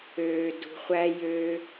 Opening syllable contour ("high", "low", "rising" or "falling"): low